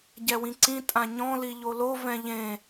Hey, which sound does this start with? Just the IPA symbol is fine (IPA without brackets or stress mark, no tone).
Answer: ɟ